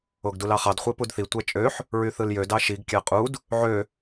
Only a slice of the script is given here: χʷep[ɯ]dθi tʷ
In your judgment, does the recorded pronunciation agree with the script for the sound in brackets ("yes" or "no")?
no